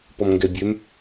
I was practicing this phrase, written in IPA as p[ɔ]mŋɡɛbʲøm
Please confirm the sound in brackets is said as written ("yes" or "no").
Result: yes